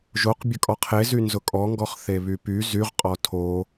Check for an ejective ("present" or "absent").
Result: present